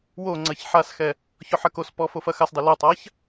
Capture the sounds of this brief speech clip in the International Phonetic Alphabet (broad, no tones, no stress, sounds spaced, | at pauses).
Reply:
w o ŋ͡ǀ ɐ ç ħ a s x ɛ | ç ɔ ħ ɐ k o s p ɔ f o f ɐ x a s dˤ ɪ l ə tˤ a ç